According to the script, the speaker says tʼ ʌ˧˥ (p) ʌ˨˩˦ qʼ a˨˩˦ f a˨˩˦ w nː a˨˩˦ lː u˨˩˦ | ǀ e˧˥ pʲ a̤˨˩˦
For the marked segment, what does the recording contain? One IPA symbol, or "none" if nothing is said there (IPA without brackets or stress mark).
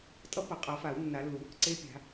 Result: p